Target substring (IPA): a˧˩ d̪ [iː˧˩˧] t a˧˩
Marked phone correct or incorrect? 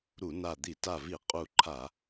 incorrect